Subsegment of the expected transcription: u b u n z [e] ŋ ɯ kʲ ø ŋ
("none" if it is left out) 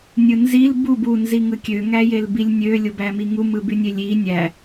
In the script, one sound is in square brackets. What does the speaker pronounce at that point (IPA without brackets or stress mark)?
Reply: i